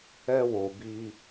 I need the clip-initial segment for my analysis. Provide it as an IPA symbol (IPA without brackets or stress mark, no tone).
ɛ